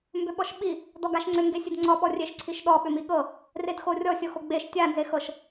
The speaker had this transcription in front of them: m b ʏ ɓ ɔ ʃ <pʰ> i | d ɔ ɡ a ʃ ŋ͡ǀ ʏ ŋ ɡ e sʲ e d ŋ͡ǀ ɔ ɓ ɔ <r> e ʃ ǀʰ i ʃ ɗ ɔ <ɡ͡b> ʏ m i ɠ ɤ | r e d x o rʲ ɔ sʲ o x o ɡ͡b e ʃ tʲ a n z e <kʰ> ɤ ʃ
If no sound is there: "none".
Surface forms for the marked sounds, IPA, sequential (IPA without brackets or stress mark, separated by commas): ɓ, rʲ, ɓ, x